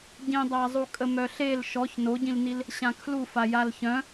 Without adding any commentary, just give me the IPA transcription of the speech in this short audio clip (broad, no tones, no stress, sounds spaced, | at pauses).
ɟ ĩ dˤ a zˤ u kʼ ə m œ ɬ e l ʃ ɔ ç n o ɟ ĩ l n i l | ɕ ã kʰ l u f a j a l ç œ̃